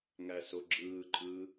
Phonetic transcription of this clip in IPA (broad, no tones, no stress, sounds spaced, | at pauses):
ŋ æ s o ɡ͡ǁ ɯː ǃʼ ɯː